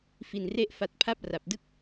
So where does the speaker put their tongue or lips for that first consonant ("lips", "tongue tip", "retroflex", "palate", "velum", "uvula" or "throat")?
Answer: lips